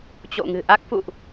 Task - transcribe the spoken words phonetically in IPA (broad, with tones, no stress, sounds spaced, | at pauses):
t͡ɕ o̰˧˨ ŋ ɨ̤˨˩ ʔ a˦˥ k̚ f ṵ˧˨ ʔ